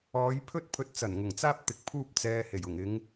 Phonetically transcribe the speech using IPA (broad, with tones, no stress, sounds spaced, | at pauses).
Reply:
ɔː˨˧ j pʰ ɵ˥ t̚ pʰ ɵ˧ t̚ t͡s ɐ˨˩ n ŋ ʊ˨˩ ŋ t͡s aː˥ p̚ t̪ ɪ˨˥ k̚ pʰ uː˥ p̚ t͡s ɛː˧ h e˨˩ j ʊ˨˩ ŋ ɪ˨˧ ŋ